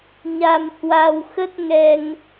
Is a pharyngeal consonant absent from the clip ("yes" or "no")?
yes